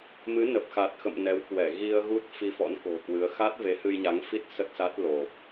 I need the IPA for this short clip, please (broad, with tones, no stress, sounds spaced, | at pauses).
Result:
m ɨ˨˦ n ə˨˩ p̚ x a˨˩ t̚ x ə̰˧˨ m n ɛ˨˦ w k w ɛ˧˩ ɣ i˧ ə̯ ɣ u˦˥ t̚ f i˧ f ɔ̰˧˥ n k o̤˨˩ k w ɨ˨˦ ə̯ x a˦˥ t̚ v e˨˦ h ɨ˧ j ɲ a˨˦ ŋ f i˦˥ t̚ s ə˦˥ t̚ s a˦˥ t̚ l o˨˩ p̚